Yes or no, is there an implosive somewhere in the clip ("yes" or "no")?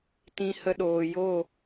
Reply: yes